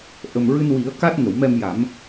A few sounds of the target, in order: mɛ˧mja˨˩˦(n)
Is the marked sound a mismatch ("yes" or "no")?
yes